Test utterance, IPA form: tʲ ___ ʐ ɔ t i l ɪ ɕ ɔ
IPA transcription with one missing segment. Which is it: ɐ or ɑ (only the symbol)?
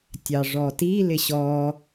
ɑ